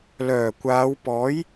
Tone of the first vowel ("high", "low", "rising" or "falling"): low